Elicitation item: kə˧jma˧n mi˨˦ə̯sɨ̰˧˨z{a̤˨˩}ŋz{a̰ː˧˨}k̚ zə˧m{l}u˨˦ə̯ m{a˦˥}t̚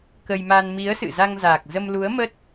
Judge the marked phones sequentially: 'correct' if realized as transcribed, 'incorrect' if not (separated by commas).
incorrect, incorrect, correct, incorrect